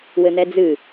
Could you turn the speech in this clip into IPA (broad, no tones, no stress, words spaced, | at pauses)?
wɘn̪ɛd͡zɨ